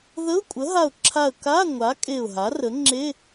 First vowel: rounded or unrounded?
unrounded